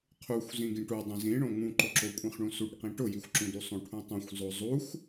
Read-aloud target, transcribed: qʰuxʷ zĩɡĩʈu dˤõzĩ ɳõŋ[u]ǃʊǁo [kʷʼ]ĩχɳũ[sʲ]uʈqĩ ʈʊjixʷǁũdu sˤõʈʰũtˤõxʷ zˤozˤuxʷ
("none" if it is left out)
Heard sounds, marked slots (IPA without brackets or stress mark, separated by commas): ũ, kʷʼ, s